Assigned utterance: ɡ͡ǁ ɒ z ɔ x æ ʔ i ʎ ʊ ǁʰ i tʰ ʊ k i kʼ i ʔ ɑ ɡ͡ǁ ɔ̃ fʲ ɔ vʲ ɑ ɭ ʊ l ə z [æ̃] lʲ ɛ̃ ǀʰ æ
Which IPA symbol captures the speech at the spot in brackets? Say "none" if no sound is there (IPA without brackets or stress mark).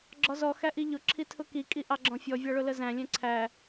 æ̃